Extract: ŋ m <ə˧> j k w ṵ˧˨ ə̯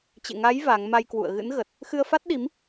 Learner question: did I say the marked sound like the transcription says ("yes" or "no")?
no